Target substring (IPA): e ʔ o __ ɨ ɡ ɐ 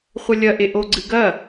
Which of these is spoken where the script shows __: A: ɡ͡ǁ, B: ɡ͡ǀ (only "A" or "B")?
B